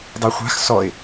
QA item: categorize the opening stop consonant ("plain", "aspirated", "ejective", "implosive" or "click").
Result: plain